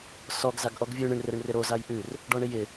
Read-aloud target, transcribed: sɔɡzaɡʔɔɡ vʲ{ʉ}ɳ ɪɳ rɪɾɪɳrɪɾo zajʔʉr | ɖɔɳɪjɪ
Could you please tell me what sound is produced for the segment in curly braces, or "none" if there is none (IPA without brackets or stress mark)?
ʉ